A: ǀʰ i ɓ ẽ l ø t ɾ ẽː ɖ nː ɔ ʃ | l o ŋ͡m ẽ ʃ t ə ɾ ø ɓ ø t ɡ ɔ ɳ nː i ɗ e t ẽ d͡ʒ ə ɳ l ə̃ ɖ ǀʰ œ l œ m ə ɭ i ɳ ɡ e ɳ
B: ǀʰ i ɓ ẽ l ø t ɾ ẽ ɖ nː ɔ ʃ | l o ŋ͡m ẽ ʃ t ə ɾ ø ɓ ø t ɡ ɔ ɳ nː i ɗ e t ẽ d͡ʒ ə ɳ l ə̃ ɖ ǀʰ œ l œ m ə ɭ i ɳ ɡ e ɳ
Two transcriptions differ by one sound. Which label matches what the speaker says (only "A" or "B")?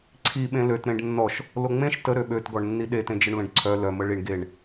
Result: B